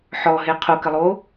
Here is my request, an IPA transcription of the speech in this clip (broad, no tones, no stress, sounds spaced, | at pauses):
ħ ɔ ɦ e qʰ o k ɘ lˠ o